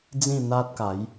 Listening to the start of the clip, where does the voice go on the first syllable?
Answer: falling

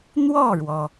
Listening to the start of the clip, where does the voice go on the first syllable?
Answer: falling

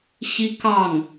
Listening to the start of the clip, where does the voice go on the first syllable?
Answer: high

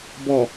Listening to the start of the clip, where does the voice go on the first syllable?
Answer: low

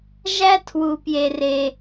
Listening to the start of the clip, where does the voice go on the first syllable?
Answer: high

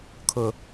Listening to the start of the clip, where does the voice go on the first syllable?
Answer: low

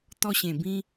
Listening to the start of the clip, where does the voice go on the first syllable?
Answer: high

